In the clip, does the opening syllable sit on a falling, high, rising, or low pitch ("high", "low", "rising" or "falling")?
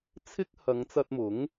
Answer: high